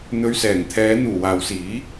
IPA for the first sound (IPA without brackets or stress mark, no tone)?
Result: n̪